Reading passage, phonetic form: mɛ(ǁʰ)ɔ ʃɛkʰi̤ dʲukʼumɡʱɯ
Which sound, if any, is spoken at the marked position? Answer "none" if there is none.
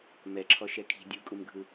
ǁʰ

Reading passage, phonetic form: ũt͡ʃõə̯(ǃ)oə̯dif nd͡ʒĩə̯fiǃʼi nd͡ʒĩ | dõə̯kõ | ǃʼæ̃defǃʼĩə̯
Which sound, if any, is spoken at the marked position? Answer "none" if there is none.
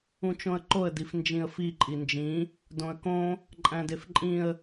ǃ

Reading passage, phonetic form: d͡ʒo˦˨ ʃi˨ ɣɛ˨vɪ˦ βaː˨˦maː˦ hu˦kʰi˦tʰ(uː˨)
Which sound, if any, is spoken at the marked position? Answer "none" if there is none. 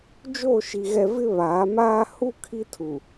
u˨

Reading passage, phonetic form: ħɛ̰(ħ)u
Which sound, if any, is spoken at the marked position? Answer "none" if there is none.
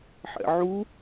ʕ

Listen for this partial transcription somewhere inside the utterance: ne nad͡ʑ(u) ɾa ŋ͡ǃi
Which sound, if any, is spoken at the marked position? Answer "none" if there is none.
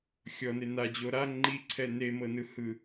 o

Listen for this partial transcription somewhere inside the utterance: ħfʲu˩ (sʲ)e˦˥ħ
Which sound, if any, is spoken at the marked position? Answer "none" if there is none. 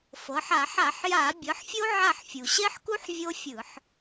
ɕ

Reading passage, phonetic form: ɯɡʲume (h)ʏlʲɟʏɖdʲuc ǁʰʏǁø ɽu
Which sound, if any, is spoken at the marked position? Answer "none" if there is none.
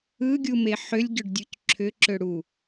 ħ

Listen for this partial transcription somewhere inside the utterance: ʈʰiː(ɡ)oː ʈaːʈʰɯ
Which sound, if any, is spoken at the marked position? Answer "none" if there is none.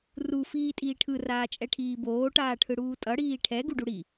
b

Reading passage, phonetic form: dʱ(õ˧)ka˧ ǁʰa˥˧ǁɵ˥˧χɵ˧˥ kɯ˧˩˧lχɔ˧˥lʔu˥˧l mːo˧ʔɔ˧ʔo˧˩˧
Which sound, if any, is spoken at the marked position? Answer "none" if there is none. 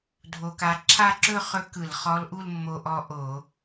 o˧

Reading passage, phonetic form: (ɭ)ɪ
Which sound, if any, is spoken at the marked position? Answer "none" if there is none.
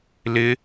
l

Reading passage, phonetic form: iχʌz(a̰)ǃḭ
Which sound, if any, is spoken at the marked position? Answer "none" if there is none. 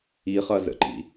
ə̰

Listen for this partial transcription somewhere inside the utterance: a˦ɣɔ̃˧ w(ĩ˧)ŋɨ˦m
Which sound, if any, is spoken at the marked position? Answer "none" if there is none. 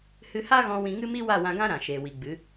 ĩ˧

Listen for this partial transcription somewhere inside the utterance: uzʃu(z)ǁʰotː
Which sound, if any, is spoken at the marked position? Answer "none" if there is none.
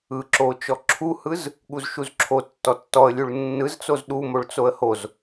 z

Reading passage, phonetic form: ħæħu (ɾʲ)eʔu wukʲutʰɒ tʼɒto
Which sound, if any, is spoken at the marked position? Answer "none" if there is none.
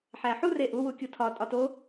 r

